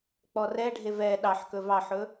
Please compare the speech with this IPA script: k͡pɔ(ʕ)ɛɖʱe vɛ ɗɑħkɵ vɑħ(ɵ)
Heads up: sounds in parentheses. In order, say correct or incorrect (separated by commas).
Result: incorrect, correct